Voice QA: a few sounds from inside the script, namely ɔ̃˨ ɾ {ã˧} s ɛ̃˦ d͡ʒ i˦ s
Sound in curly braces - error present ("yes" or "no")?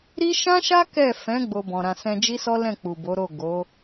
no